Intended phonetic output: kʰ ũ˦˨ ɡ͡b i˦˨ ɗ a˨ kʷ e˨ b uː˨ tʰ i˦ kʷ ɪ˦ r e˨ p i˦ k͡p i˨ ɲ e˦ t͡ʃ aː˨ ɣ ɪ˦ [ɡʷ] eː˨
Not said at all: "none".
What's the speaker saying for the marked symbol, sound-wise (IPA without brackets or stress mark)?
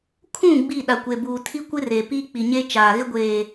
ɡʷ